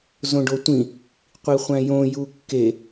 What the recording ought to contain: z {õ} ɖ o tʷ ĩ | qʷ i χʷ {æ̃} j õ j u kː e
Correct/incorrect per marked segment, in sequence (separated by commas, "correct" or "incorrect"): correct, correct